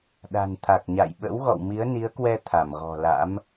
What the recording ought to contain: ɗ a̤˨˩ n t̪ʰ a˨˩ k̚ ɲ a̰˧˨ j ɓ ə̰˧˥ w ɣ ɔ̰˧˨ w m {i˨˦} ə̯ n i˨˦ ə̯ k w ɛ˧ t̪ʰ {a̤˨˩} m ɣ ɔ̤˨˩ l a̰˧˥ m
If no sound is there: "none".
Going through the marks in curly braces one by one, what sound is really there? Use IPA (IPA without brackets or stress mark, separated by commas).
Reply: i˨˦, a˧˩